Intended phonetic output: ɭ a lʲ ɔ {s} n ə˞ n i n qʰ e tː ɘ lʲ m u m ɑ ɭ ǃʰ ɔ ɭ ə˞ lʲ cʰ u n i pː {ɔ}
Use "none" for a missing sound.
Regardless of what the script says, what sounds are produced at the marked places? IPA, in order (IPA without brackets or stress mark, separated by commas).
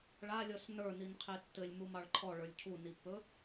s, ɵ